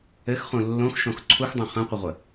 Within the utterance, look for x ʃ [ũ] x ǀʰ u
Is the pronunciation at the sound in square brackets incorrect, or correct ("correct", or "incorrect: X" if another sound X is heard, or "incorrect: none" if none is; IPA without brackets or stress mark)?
incorrect: õ